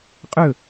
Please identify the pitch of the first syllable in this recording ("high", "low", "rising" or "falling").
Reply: falling